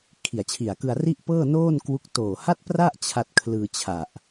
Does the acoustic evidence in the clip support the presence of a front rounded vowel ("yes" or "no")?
no